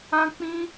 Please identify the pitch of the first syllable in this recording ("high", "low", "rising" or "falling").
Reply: high